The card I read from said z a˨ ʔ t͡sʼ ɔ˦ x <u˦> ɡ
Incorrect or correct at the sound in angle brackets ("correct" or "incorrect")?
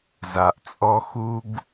correct